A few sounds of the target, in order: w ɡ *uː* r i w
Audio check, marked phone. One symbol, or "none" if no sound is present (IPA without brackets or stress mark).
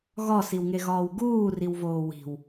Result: uː